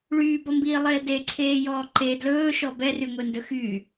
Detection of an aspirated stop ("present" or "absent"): present